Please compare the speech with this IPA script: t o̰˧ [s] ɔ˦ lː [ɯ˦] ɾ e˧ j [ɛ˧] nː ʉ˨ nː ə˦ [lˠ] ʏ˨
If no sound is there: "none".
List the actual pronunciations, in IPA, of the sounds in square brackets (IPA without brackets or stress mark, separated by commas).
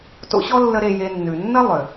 ɕ, ə˦, e˧, lˠ